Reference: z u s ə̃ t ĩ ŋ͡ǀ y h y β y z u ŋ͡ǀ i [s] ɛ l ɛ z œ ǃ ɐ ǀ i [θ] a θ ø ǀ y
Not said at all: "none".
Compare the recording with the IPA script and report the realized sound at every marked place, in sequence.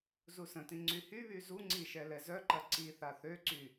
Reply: ʃ, θ

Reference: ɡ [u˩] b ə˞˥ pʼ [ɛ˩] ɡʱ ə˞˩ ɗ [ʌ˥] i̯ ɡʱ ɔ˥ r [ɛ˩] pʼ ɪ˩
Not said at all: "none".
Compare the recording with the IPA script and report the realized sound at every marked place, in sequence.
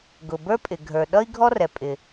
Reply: ʊ˩, ɪ˩, ʌ˥, ɛ˩

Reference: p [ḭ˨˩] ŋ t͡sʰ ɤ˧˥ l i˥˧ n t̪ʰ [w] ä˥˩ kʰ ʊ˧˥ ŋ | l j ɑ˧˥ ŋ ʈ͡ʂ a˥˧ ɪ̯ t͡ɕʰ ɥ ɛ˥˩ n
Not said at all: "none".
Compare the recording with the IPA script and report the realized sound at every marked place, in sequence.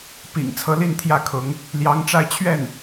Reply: ḭ˨˩, j

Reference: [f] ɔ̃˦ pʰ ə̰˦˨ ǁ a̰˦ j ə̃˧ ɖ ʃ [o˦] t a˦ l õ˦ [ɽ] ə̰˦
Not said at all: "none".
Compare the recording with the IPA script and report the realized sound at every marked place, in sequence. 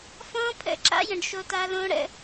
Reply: f, o˦, ɽ

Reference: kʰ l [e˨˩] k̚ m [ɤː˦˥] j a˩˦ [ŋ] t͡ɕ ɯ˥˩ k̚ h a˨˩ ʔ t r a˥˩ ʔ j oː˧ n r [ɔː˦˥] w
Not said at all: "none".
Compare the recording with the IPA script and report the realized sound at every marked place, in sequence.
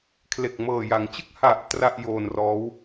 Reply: e˨˩, ɤː˨˩, ŋ, ɔː˦˥

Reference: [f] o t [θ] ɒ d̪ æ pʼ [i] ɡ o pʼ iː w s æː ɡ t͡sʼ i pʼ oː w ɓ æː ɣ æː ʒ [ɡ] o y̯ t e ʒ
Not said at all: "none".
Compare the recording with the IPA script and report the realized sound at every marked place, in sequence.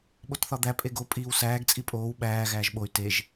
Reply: ɓ, θ, e, ɓ

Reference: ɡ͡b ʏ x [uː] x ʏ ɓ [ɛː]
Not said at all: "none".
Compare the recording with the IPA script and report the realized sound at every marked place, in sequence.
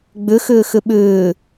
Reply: ʏː, ʏː

